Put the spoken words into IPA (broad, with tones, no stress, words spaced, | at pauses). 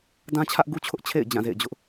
dã˦t͡ɕʰä˦ʔɡu˦t͡ɕʰʊ˦ʔ t͡ɕʰḛ˦˨ɪ̯ d͡ʑã˦˨zḛ˦˨ɪ̯d͡ʑʊ˦ʔ